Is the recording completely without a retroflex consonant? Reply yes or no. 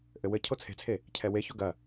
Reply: yes